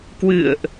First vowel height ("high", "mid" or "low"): high